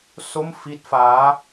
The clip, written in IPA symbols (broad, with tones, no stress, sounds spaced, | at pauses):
s o˥˩ m f i˦˥ t̚ f aː˦˥